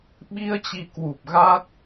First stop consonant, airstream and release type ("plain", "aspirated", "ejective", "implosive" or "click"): implosive